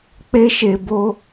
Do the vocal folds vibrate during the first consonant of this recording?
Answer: no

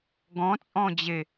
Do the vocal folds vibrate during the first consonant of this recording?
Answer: yes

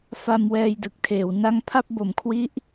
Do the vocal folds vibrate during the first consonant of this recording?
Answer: no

